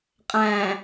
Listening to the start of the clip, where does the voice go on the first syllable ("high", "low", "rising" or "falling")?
low